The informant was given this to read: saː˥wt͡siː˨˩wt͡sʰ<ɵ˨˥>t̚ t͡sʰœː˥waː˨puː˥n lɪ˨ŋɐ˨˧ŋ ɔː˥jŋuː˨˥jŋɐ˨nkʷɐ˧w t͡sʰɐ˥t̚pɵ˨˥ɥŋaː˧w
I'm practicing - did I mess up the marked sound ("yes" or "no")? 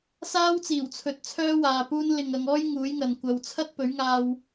no